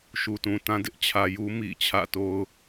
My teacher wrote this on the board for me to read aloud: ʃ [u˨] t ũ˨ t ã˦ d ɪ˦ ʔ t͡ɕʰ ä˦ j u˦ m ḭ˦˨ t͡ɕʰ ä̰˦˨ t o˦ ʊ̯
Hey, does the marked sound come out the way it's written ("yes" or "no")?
yes